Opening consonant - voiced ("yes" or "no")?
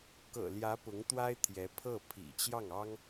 no